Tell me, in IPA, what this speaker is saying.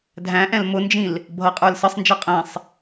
dʱæ̃ʔɛ̃l mʊnd͡ʒĩl | bʱʌ qʼə˞lsəsˤnd͡ʒɑ qʼɛ̃sˤ

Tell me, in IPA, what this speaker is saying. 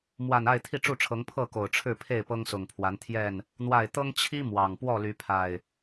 mwa˨˩na˥˨ɪ̯ t̪ʰi˥˨ʈ͡ʂu˥˨ʈ͡ʂʰɤ˨˦ŋ pʰɤ˥˨ko˨˩ʊ̯ ʈ͡ʂʰɻ̩˥˨pʰe˥˨ɪ̯ pɤ˦ŋsʊ˨˩ŋpʰwa˨˦n t̪ʰjɛ˥˨n | n̪wa˥˨ɪ̯ t̪ɤ˦ŋt͡ɕʰi˦ mwɑ˨˩ŋ pwɔ˥˨ly˨˦pʰa˨˩ɪ̯

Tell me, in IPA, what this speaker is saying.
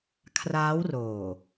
kʰraː˦˥wroː˨˩

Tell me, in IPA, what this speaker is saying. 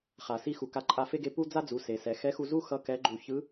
χa˩si˧˥ xu˩ka˧ ǃʼa˧fe˥ɡe˧˥ pu˥ d͡za˥d͡zu˩˧ se˩sɛ˩˧ xɛ˧˥xu˧ zu˥xʌ˧˥ kɛ˧˥ɡ͡ǃu˧ çɯ˧˥

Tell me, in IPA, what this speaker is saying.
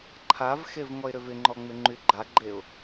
ǃʰavxev ŋɔɪ̯ɾøvɪŋ͡ǃɔ ŋ͡mɪŋ͡ǃyɡ͡ǃaɡ͡ǃeʊ̯

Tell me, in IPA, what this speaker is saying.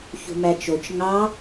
çṳmæt͡ʃot͡ʃ ŋɑ

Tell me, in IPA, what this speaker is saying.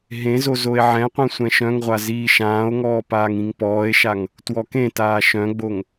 ɦẽzo zoe̯ʕɛ̃qʷɛ̃ sʷɛ̃ʃœ̃ŋʁʷa ziːʃãːo̯ŋɔː paːŋĩŋpɔːe̯ʃaŋ | twɔkẽtaː ʃœ̃ɡ͡boŋ

